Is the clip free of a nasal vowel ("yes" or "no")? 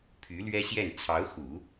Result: yes